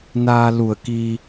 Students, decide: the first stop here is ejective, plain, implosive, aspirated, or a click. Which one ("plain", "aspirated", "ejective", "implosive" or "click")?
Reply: plain